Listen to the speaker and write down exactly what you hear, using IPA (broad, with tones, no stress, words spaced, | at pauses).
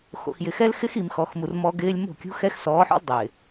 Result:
xo̰˨xjɪ˨xɛ˦lxɪ˦x i˨mxɔ˨xmu˨r mɔ˦ɡɪː˦lʲ mo̤˦˨kʲṳ˦xɛ˦x sɔː˨˦ħɔ̰˦l dˤɪː˨